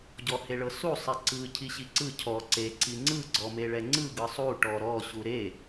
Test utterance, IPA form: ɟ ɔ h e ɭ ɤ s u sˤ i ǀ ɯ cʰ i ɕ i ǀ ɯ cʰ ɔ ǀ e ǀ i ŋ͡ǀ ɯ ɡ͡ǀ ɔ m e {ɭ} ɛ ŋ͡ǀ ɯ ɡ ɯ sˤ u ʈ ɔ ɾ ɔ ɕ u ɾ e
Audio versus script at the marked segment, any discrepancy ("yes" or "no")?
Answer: no